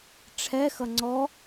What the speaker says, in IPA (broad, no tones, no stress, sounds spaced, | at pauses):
ʈ͡ʂʰ ɛ x ʌ ŋ͡ǀ ɔ